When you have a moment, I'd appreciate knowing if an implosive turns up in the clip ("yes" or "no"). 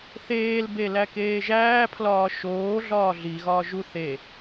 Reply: no